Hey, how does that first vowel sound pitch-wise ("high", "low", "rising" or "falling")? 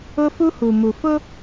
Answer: high